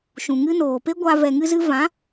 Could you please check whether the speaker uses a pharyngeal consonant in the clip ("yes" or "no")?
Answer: no